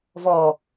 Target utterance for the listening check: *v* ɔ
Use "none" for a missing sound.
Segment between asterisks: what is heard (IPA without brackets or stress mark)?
v